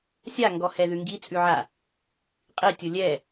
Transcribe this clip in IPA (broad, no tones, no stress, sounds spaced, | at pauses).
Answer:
sʲ a ŋ ɡ ɔ h ɛ ð ʉ ŋ ɡ i t͡sʼ ʉ ʕ a | qʼ i tʲ ʊ lʲ ɛ